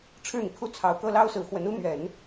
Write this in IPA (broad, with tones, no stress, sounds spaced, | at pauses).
ʈ͡ʂʰ ɻ̩˥˩ n̪ i˩ kʰ u˥˩ t͡sʰ ɑ˨˩ ʊ̯ k ɤ˥˩ l ɑ˥ ʊ̯ s ɹ̩˨˩ x w ə˧˥ n u˥ n̪ ɥ ɛ˨˩˦ n